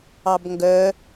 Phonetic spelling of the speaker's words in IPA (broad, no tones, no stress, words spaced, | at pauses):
ɑbŋɡœ